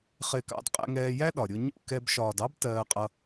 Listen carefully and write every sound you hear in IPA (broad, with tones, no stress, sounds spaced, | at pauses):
χ ɪː˧ k ɑ̰˧ d qʼ ɛ̰˧ ŋ ɛː˧ j æ˦ ɗ ɒ˨ ɾʲ ʊ˧ ɲ ṵ˦˨ k ɛ˧ b ʃ ɒː˨ d ɑ˦ b t ɜː˧ qʼ ʌ˧